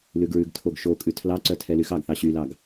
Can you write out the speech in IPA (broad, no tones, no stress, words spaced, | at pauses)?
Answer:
lʉɡɹʉɡtʰoɡ ʃokʼʉ tʰlɑǀœ tʰɛlyxɑɡθɑ ɕylɑɡ